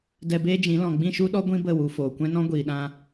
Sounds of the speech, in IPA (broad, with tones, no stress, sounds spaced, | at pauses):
d ɛ˧ b eː˦ d͡ʒ ĩ˨˦ l ɔ̃˨ ɡ͡b ĩ˦˨ ʃ u˦ ɗ ɔ˦ ɡʷ ĩ˦ b ə˦˨ w u˨ f oː˨ kʷ ɛ̃˦ n ɔ̃˦ ɡʷ iː˨ ɗ ã˧